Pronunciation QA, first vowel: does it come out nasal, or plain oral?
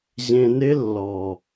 nasal